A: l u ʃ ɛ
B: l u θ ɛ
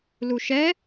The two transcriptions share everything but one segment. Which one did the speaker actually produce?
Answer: A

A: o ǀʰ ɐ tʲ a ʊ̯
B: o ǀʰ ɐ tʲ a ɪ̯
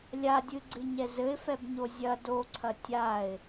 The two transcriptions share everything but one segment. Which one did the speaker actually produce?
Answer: B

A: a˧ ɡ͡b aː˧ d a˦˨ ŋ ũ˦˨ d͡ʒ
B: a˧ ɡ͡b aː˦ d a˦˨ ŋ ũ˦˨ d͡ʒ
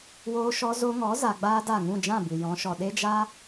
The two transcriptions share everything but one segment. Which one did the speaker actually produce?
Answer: B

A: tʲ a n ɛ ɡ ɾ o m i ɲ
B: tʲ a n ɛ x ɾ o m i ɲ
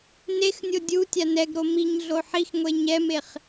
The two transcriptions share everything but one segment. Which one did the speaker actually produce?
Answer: A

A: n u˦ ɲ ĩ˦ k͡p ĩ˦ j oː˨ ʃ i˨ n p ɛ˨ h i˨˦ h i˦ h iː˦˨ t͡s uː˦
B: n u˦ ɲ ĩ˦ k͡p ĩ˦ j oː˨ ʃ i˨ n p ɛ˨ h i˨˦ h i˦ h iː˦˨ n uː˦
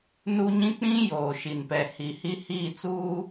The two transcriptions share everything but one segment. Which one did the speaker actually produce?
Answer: A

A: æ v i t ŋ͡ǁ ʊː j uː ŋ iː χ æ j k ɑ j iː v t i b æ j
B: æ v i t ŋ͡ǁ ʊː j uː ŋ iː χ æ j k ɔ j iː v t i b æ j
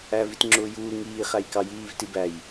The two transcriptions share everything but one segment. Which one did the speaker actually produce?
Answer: A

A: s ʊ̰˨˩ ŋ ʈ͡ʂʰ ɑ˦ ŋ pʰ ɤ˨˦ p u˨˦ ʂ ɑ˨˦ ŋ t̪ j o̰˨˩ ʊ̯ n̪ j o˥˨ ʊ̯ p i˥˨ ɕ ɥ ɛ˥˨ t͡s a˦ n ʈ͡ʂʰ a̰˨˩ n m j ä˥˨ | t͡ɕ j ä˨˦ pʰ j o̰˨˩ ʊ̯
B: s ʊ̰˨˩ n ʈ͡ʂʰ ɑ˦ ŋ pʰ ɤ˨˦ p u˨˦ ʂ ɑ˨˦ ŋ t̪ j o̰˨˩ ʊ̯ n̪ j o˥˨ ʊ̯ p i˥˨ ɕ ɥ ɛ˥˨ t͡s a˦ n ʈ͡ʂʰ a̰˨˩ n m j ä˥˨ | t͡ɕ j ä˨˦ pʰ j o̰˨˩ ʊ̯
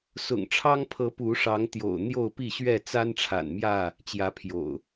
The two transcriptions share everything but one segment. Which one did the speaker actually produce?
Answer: A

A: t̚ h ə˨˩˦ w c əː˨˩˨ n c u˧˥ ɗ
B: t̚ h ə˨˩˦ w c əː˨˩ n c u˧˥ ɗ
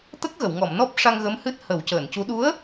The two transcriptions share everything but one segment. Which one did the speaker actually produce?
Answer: A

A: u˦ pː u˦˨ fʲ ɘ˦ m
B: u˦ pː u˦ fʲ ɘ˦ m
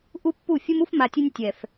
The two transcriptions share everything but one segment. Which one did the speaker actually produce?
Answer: A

